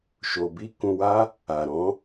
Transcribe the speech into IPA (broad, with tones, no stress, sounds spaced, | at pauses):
ʃ o˧ b i˦ k ũ˧ w a˦ | a˨ ɾ ɔ̃˨˦